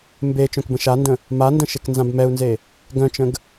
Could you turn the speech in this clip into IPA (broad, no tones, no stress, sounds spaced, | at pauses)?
m b e t͡ʃ œ̃ k b ə̃ ʃ a n d ə̃ | m a n d ə̃ ʃ e k n z ã b m ɛ u̯ n z e | ɡ œ̃ t͡ʃ ə̃ ɡ